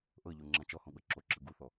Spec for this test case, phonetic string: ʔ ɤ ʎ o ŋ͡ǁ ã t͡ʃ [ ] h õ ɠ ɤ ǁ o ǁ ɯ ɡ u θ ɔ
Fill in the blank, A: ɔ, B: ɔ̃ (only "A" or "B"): A